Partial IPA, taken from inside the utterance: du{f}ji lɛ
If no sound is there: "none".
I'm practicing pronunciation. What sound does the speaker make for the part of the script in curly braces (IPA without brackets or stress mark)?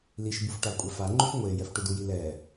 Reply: none